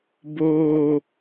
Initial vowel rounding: rounded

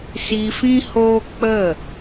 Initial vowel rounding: unrounded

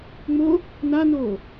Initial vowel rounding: rounded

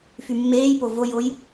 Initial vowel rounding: rounded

